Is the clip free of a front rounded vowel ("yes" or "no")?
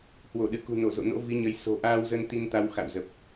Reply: yes